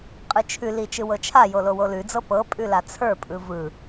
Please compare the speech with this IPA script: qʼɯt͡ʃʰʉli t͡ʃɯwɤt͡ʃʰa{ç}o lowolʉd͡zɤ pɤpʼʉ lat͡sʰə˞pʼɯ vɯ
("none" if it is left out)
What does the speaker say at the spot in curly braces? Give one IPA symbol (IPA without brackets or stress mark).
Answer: j